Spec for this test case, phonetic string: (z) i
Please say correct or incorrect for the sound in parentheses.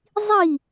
incorrect